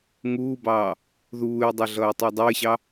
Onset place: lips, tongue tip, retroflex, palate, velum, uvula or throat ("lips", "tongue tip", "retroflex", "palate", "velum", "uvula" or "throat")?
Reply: velum